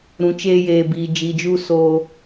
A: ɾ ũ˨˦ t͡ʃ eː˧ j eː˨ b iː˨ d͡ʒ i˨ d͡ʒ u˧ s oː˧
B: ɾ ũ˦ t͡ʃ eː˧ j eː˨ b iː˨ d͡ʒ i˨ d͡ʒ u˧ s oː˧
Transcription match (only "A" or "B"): A